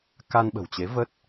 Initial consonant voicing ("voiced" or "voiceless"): voiceless